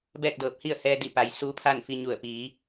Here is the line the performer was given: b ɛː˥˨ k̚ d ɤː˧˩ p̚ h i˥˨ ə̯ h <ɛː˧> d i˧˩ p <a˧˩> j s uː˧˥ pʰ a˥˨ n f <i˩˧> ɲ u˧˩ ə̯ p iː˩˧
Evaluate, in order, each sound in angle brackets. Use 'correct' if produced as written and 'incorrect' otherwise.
correct, incorrect: a˩˧, incorrect: i˧

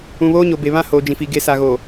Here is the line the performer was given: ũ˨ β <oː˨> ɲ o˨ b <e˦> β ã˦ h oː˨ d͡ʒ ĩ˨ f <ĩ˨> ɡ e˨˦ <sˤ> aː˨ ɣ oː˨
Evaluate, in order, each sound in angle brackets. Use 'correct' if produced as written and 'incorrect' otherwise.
incorrect: oː˦, incorrect: e˨, incorrect: i˨, incorrect: s

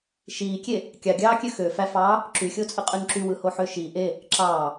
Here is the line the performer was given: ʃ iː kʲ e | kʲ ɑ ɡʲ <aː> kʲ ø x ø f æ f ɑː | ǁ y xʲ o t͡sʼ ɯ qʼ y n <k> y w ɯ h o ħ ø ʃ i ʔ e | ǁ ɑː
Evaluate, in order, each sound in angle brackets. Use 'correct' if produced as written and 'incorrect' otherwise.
incorrect: ɑː, incorrect: ǁ

